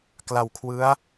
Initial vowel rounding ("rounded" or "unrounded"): unrounded